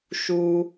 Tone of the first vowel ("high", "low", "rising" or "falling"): high